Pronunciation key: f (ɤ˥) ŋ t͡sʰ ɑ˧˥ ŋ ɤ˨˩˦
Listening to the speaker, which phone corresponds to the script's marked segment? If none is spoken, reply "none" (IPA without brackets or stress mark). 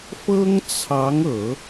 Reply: ɤ˥